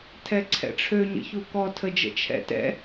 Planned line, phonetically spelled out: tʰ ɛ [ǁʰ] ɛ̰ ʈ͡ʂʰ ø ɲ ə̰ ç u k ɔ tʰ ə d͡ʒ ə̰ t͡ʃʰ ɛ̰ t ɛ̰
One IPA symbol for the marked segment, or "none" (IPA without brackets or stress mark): ǀʰ